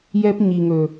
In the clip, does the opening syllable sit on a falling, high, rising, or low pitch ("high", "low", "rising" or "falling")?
high